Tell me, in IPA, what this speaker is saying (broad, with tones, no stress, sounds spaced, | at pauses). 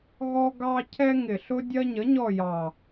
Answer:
ɣ ɔ˦ ɡ ɑ˦ cʰ ɛ˦ ŋ ɪ˨˩ ɬ ʊ˦ dʲ ɜ˦ ɲ ə˨˥ ɲ ɔ˦˨ j ɑ˨˩